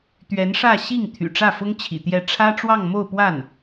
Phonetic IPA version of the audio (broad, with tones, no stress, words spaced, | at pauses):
t̪ɥɛ˧˥nʂä˥˧ ɕi˥˩ŋ t̪ʰy̰˨˩ʈ͡ʂä˥˩fʊ˥ŋt͡ɕʰḭ˨˩ t̪jɛ˥˩ ʈ͡ʂʰä˥ʈ͡ʂwɑ˥˧ŋmo˥˧ʊ̯pwa˥˩n